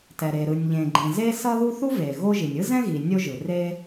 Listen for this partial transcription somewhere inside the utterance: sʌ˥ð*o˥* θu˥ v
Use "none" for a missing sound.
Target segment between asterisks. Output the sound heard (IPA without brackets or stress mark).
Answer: u˥